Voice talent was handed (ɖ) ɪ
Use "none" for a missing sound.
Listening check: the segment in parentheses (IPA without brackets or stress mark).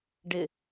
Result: ɖ